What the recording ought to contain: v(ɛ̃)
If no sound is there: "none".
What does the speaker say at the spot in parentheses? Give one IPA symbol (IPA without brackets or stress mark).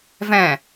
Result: ɛ̃